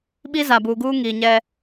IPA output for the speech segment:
ɓ i˦ z a˨ b uː˨ ɡ uː˦ ŋ i˨ ɲ ɛ˦

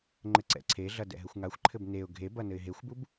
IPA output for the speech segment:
ŋ͡ǃ ɘ ǀ ɛ̰ ǀʰ e ɮ ɐ d ɛ̰ ɦ ɘ xʷ ŋ a xʷ ǃʰ ɘ b n e ʊ̯ ɡʱ e b ɐ n ɘ ɪ̯ ɦ e xʷ b u b

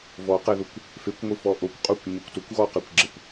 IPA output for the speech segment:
v ɔ q e ð ʊ kʷ | f e kʷ ŋʷ i f ɔ ʔ o kʷ qʼ u kʷ ɲ o kʷ t ʊ kʷ ɣ ɔ q ɛ kʷ ɡ͡ǁ ɪ kʷ

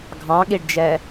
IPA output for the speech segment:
ɡʱ ɑ̃ ɠ i ɖ d͡ʒ ɛ

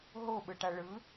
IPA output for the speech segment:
ɦ o ɓ ɯ ʈ a ɭ ɯ

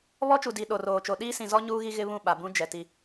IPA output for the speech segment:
β ɔ˦ t͡ʃ u˨ d i˨ ɗ o˨ r oː˨ t͡ʃ o˨ ɗ iː˦ s ĩ˨ z ɔ˦ ɲ uː˦ ɣ i˦ ɣ ɪ˦ β ũ˦˨ ɓ a˨ b ũ˦ d͡ʒ ɛ˨ t i˦

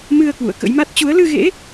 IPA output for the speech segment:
m ɨ˧ ə̯ k w ṵ˧˨ ə̯ k ə̰˧˥ j m a˦˥ t̚ t͡ɕ u˨˦ ə̯ l ɨ˧ ɣ ḛ˧˥

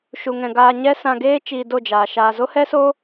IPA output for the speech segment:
ʃ u˧ ŋ ɛ̃˧ ɡ aː˧ ɲ ɛ˦ s ã˧ ɡ eː˦ t͡ʃ iː˧ d o˦˨ d͡ʒ aː˨ ʃ aː˨ z o˦ h ɛ˦ s oː˦

